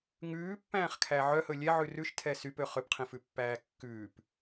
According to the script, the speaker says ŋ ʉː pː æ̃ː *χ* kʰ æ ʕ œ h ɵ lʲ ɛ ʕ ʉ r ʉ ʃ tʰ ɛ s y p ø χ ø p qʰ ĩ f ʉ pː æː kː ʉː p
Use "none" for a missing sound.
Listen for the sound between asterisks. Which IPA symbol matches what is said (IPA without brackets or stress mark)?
χ